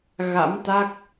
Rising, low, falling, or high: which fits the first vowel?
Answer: rising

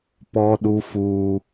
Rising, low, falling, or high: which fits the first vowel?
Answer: high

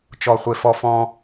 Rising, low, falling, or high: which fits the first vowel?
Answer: low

